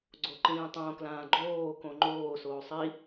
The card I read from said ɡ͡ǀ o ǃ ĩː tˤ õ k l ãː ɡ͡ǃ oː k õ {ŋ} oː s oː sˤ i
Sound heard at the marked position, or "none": ŋ͡ǃ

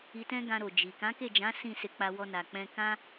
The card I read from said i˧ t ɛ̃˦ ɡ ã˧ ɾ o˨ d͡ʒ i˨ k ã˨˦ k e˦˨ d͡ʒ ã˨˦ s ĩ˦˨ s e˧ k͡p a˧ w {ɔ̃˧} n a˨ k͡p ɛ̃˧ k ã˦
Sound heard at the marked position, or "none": ɔ˧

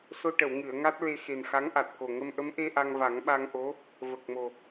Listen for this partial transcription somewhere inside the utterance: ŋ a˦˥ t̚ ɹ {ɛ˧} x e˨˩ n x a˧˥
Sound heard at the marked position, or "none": e˧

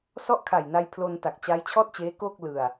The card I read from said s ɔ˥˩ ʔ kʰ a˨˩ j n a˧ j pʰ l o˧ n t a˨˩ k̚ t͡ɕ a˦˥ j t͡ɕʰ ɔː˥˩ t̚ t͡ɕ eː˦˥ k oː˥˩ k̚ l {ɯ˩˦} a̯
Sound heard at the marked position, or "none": ɯ˧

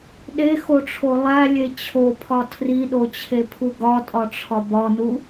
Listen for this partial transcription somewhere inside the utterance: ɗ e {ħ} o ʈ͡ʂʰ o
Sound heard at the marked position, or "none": x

